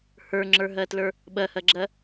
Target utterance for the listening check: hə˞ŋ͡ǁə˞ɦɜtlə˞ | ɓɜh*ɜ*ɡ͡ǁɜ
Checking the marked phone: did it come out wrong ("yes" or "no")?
no